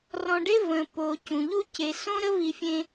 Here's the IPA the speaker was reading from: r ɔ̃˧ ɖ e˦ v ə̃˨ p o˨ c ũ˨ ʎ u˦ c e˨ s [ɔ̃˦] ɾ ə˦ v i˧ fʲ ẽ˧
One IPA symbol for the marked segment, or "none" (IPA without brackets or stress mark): õ˦